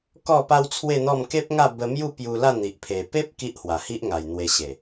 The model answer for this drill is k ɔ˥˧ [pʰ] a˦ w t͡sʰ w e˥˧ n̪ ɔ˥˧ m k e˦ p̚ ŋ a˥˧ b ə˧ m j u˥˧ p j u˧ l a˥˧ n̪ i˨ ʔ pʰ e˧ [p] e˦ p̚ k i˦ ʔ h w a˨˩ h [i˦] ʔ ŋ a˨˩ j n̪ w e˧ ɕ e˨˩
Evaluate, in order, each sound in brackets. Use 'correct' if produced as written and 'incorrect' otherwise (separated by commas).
incorrect, correct, correct